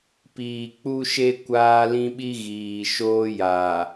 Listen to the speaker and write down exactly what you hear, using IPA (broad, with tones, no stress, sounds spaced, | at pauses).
p iː˨ k͡p u˨ ʃ e˨ kʷ aː˦ l ĩ˦ ɓ i˦ ɣ iː˨ ʃ oː˦ j aː˨